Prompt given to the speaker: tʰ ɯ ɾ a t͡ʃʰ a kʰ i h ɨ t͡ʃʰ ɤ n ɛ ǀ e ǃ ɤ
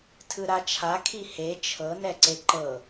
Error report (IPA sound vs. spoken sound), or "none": ɨ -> e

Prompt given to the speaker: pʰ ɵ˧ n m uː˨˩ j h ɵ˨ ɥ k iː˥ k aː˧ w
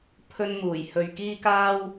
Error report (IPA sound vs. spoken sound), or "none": aː˧ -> aː˥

